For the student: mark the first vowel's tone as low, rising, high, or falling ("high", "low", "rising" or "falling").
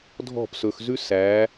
falling